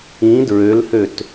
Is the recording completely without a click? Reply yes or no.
yes